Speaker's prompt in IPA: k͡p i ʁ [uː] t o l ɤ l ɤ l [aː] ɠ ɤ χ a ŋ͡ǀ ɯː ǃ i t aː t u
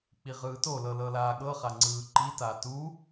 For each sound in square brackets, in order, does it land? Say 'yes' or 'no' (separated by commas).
no, yes